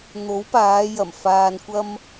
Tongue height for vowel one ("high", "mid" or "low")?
mid